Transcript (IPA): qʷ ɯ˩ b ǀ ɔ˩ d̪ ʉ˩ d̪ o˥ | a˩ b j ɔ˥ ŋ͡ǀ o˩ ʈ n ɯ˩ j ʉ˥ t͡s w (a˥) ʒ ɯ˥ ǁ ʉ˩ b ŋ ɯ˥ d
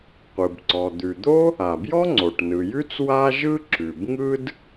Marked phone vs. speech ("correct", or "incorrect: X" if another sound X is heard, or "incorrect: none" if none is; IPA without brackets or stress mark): correct